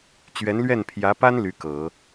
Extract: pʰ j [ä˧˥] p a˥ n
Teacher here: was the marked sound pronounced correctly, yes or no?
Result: yes